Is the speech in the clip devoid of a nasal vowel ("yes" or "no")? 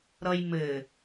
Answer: yes